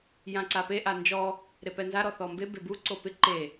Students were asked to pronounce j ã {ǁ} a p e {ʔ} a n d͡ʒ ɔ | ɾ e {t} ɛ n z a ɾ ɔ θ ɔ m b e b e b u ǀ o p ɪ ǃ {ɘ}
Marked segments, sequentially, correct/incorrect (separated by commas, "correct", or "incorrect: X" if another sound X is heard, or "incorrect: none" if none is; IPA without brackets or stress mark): incorrect: ǀ, correct, incorrect: p, incorrect: e